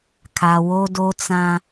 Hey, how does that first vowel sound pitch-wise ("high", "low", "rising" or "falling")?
low